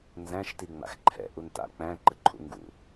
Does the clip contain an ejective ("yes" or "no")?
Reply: no